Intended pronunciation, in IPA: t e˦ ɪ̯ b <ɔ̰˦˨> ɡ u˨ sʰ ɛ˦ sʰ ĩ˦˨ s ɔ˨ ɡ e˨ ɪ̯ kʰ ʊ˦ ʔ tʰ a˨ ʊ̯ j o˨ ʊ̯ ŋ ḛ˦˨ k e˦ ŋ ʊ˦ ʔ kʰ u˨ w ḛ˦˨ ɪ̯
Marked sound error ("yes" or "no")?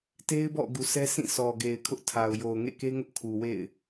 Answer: no